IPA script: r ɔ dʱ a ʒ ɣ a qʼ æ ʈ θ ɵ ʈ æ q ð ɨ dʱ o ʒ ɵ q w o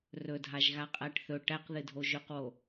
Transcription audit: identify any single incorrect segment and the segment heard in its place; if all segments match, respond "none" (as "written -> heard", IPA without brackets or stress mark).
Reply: ɔ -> ɵ